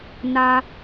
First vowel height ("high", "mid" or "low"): low